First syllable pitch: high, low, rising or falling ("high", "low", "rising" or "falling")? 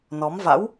rising